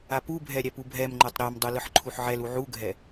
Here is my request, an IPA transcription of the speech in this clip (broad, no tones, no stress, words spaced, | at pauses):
apubʱɛ ɾʲæpubʱɛmŋ͡ǃə˞tˤ ɾɛmdˤu lɯħǃʰuħʕɛlu ʕuɡʱɛ